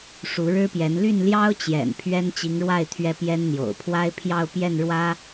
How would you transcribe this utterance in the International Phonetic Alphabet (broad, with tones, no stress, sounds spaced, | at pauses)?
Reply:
ʂ u˧˥ ɻ ɻ̩˥ p j ɛ˧˥ n l y˥˩ n l j ɑ˥ ʊ̯ t͡ɕ j ɛ̰˨˩ n pʰ ɥ ɛ˥ n t͡ɕ i˧˥ ŋ ɻ w a˥˩ ɪ̯ t̪ʰ ɥ ɛ˥ p j ɛ˥ n n̪ j o̰˨˩ ʊ̯ pʰ w a˥ ɪ̯ pʰ j ɑ˥˧ ʊ̯ p j ɛ˥˩ n ɻ w ä˥